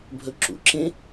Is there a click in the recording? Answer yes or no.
yes